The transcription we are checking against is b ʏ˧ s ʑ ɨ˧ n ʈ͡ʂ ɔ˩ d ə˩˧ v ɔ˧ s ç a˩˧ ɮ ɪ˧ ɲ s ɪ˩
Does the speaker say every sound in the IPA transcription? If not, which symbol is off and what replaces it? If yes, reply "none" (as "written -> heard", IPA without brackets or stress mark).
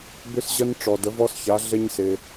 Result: ɨ˧ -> ə˧